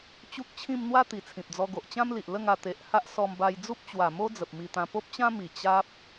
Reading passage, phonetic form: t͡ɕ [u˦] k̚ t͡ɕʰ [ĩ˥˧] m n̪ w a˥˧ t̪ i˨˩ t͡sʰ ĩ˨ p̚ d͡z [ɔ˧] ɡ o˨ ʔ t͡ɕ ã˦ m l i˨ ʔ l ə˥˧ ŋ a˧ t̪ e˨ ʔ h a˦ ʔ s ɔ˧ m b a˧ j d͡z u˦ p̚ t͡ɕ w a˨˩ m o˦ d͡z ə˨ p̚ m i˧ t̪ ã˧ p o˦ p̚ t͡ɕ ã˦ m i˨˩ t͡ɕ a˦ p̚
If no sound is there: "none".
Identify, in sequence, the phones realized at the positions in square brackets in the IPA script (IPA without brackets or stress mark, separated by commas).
u˦, ĩ˥˧, ɔ˧